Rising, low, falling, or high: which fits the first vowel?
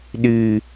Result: low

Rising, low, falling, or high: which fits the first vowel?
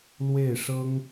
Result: falling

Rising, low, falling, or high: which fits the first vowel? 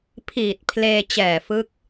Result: low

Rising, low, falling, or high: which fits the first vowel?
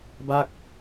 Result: falling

